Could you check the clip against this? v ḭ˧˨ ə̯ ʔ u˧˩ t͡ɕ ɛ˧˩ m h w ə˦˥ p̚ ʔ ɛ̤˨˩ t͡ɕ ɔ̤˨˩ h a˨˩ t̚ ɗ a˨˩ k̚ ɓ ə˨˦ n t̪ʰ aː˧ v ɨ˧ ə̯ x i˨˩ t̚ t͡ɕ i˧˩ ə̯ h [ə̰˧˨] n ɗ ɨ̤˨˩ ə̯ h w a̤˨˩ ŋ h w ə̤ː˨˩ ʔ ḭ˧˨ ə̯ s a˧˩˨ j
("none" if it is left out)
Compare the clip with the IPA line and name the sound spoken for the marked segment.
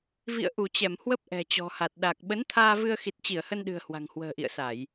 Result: ə˧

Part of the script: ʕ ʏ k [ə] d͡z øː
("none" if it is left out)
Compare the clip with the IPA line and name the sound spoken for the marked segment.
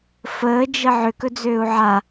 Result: ɵ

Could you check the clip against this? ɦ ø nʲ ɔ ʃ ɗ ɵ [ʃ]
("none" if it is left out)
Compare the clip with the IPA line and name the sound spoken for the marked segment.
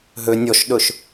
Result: ʃ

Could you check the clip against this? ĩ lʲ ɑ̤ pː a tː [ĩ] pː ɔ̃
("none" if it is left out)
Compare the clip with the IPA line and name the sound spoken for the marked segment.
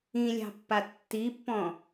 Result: i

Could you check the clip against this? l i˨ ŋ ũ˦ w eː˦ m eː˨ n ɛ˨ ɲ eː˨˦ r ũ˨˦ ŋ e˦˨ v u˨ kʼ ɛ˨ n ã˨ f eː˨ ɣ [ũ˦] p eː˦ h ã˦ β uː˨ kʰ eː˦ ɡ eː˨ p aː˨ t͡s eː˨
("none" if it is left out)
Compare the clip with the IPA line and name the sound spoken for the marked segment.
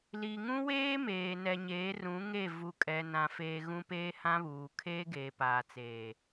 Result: ũ˦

